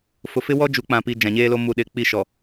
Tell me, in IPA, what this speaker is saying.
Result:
fʊ˨fɪ˦wɔ˦ d͡ʒu˨˦k͡pã˨pi˨ d͡ʒã˨ɲeː˦lo˦ mu˨ɗɪ˨ k͡pi˦˨ʃɔ˨

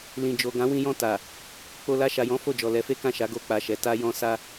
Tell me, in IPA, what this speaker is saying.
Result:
lĩ˨d͡ʒo˨ ɡã˨˦wĩ˧jɔ̃˧ ta˨ | k͡po˧ la˧ʃa˨jɔ̃˨˦ fo˦˨d͡ʒɔ˨ lɛ˨˦fe˦kã˦˨ʃa˨˦ ɡo˧k͡pa˨ʃɛ˨ ta˧jɔ̃˧ sa˧

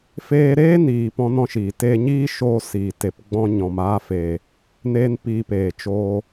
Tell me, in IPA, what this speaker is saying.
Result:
feː˧ɾeː˦ niː˨ pɔ̃˦nɔ̃˦ʃiː˨ teː˧ɲiː˦ ʃoː˦siː˨ te˨p ɡ͡bɔ̃˧ɲɔ̃˨maː˧feː˨ | ne˦npiː˧peː˨ t͡ʃoː˧

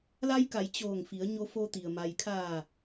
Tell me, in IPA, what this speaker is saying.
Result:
la˧jka˩˧j t͡ɕoː˧˩ŋfi˩˧ə̯ ɲo˧fo˧t̪i˩ə̯ ma˩jkʰaː˧˩

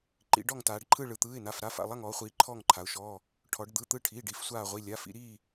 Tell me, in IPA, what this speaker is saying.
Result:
ǃḭ˩˧ɖɔ˦˨ŋtaː˩˧ɖǃʰɯ˦˨ ɭɯ˩˧t̪ɯː˩˧˩ɪ̯na˩˧˩f ɾa˩˧˩fa̰˩˧˩lˠa˦˨ŋ ɔː˩˧χʷiː˩˧ ǃʰɔː˦˨ŋǃʰa˩˧ʊ̯ʃɔː˩˧˩ | ʈʰɔ˩˧ɖd̪ɯ˩˧˩t̪ɯ˦˨ʈʰiː˩˧˩ɖ i˩˧˩fsʷaː˦˨ʁʷi˩˧˩ lʲa˩˧˩fḭ˩˧ɾiː˦˨

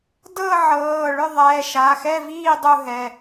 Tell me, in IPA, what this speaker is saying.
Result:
dɤ˥˨ʕɤː˩˧˩ ɭʏ˥˨ðˤɛː˩˧˩ʃa˩˧˩ xɛ˥˨viː˥˨ dˤu˥˨ɦɛ˩˧˩

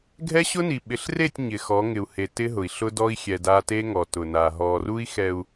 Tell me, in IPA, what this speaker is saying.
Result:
ɡʱɛ˦ɕʊ˦ni˨ ɓɪ˨ɬre˦˨tʲ ɲɪ˨ xɔ˨˦ŋɪ˨u̯he˨ tɪ˦ɦʊ˨i̯ɬʊ˦ dɔ˦i̯xʲɛ˨da˦ te˦ŋɔ˨tʊ˨na˨ ɦɔ˨ru˦i̯ xɛ˨u̯

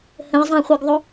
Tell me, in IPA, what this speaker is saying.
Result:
hə̃ɪ̯zˤæ̃χʷɜɡðˤʊ

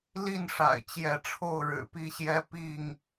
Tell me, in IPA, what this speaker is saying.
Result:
li˥˨nʂa̰˨˩ɪ̯ t͡ɕjɛ˨˦ʈ͡ʂʰo˥˨ʊ̯ɻɻ̩˨˩ pi˥˨ɕjɛ˦ pi˥˨ŋ

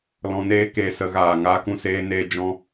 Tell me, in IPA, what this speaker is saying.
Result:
lɔ̃˧neː˦keː˧ sə˨˦ɣaː˨ ŋaː˧kũ˦˨ seː˦neː˦ d͡ʒɔ̃˦

